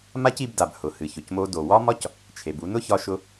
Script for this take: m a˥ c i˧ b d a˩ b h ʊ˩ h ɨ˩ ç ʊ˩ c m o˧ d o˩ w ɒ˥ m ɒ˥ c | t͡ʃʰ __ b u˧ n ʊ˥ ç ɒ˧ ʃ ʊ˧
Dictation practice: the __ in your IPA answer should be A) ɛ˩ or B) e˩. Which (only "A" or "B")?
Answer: B